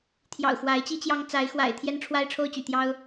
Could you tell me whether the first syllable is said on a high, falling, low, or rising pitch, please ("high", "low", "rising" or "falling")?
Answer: low